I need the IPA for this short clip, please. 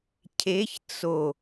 cʰ e ç t͡s o

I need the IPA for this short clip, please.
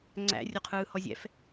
ŋ͡ǀ æ̰ rʲ o qʰ ɯː h ɔ zʲ ɛ̰ f

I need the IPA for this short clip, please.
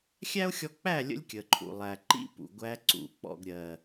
xʲ æ˦ o̯ xʲ ɔ˧ k͡p æ˦˨ lʲ ə̰˧ lʲ kʲ ə˨ ǃʰ ṵ˨ lˠ æ˨ ǃ ḭ˦ p ṵ˨ ɡʷ æ˧ ǀ ṵ˨ k͡p ɔ̰˨ ɡ ɾʲ ɜ˨

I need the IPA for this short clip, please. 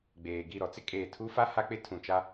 ɡ͡b eː˨ ɡ i˦˨ ɾ ɔ˨˦ t͡s ɪ˦ kʼ eː˨ tʰ u˦ f a˦ h a˦ k͡p ɪ˦ tʰ ũ˨ t͡ʃ a˦

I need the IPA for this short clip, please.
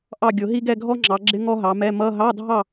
ʔ ɑ˥˨ ɡʲ ʊ˧˩˧ ɦ i˥ ɡ ɛ˥˨ ɡʱ ɔ˥ ŋ͡ǁ ɑ˩˧ ɡ͡ǁ ɪ˧˥˧ ŋ ɔ˥ ɦ ɑ˩˧ m ɛ˧˥˧ m ʌ˧˥˧ ɦ ɑ˧˥˧ dʱ ɑ˥˨

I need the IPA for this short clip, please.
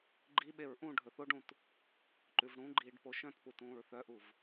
ɡ͡ǃ i ɓ e ɹ ʔ ũ ɖʱ ɵ θ o ɖ ũ t | ǃ ʉ v ɽ ũ ɡ͡ǃ iː ɖ p o ʃ œ̃ t p u t ũː ɹ θ œ ʔ u v

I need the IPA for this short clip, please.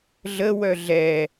ɮ ə w œ ɮ ɛ

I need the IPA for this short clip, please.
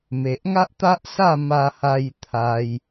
m e˨ ʔ ŋ a˦ ʔ t̪ a˦ ʔ s a˥˧ m a˧ h a˧ j t̪ʰ a˧ j

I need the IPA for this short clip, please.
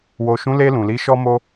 w o˨ ʃ ũ˨˦ l e˧ l ũ˨ l i˨˦ ʃ ɔ˦ m o˦

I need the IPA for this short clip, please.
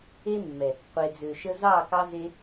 e˦ mː ɛ˨ | qʷ e˨ d͡z ø˨ ʃ ə˦ z ɑ˦˨ k ɑ˦ z e˦

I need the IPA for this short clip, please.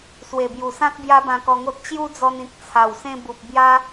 s w e˨˩ b j u˨˩ s ã˦ k̚ b j a˦ b ã˧ k ɔ˧ ŋ o˦ t̚ t͡ɕ j u˦ d͡z ɔ˧ n ĩ˨ k̚ t͡sʰ a˨˩ w s ẽ˧ b u˨ p̚ b j a˦

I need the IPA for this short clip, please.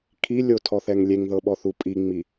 kʰ i lʲ o tʰ ɔ θ ɛ ŋ lʲ e ŋ ð ɤ ɓ ɔ θ u pʼ i ŋ͡m i

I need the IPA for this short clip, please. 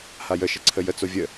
h a j ə ʃ ə ǀʰ ə j ə t͡s o vʲ ə

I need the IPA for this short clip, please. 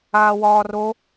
aː w ɒː r o

